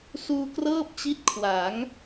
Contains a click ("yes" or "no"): no